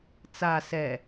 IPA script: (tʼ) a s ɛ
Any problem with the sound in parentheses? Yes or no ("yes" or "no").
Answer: yes